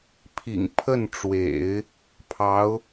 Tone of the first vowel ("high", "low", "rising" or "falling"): low